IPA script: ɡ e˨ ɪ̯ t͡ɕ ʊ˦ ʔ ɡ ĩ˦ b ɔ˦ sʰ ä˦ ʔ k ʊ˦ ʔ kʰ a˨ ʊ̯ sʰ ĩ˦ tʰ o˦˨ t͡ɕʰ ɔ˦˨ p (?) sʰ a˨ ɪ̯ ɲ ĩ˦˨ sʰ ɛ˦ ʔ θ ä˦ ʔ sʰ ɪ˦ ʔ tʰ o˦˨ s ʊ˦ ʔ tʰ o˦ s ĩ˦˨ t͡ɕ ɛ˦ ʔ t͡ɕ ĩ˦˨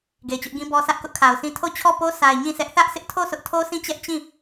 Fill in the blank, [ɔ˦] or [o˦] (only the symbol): o˦